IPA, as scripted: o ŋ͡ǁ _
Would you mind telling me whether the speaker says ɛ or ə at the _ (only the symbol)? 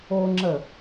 ə